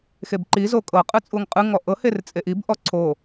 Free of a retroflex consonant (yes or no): yes